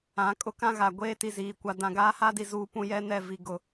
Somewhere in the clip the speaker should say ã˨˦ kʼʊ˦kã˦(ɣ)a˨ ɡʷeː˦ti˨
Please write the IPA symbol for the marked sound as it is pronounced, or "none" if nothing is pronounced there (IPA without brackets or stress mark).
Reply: ɣ